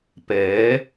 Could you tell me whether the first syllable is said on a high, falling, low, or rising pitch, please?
rising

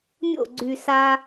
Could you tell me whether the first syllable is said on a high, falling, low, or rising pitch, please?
falling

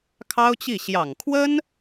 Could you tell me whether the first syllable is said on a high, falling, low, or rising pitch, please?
high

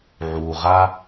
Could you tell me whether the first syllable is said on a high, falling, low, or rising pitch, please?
low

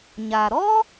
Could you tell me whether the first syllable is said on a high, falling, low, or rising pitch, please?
low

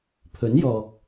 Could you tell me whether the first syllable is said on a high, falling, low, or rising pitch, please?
rising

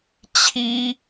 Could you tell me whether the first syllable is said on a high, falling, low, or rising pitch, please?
high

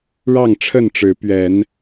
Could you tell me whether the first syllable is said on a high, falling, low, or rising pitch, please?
falling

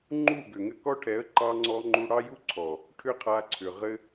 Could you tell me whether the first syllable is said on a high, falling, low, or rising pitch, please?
falling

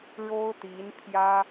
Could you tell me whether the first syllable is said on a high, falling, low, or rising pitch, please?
high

